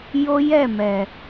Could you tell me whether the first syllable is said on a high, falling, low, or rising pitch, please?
high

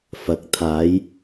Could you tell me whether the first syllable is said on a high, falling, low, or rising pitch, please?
rising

